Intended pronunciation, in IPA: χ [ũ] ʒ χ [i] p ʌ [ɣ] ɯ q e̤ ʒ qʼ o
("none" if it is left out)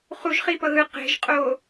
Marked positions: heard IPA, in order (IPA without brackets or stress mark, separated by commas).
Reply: u, i, ɣ